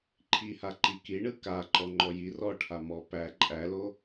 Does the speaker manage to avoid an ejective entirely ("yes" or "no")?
no